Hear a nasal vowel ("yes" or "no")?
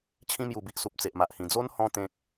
yes